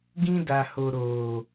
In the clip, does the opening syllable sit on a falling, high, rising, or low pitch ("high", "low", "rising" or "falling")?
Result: high